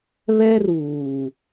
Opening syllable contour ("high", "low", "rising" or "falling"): high